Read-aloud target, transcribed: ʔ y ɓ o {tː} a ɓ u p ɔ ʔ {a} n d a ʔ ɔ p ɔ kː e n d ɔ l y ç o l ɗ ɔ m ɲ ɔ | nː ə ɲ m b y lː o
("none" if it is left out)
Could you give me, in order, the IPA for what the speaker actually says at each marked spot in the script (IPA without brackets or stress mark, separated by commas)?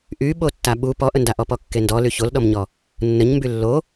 tː, ə